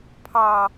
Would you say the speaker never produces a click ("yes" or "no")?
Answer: yes